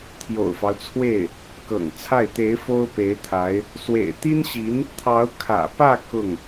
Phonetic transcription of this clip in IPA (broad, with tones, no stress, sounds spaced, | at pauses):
t̪ʰ j o̰˨˩ ʊ̯ f ɑ˦ ʊ̯ t͡sʰ w e˥˩ ɪ̯ | k ɤ̰˨˩ ŋ t͡sʰ a˥˩ ɪ̯ t̪ e˧˥ ɪ̯ f o˥ ʊ̯ p e˧˥ ɪ̯ t̪ʰ a˧˥ ɪ̯ | s w ḛ˨˩ ɪ̯ t̪ i˥ n ɕ i˧˥ n | t̪ʰ ɑ˧˥ ʊ̯ kʰ ä̰˨˩ p ä˥˧ k ʊ˥˩ ŋ